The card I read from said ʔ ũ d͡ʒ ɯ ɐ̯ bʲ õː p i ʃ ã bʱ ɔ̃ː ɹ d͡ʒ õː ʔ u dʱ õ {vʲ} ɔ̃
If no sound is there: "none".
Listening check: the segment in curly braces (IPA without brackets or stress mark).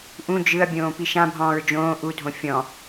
fʲ